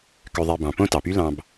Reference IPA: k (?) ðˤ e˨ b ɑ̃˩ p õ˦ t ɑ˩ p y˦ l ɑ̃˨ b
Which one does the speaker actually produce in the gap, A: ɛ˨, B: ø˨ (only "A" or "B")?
B